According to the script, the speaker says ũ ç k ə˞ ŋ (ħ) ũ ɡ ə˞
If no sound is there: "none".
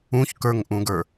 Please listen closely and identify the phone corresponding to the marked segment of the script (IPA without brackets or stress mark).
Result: ʔ